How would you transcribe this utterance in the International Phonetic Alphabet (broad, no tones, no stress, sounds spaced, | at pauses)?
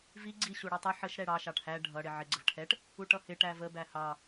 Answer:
v i ɡ͡ǀ i ɕ u ɽ ɛ tˤ ɪ ħ ə ʃ ɾ ɛ ɽ ɑ ʃ ɑ ʈ h æ ɖʱ ʌ ɽ ɪ ʕ ɪ ɡ͡ǀ ə v ʈʰ ɛ ʈ | u ʈ ʌ h ɪ ʈ æ v ə b æ h ɑ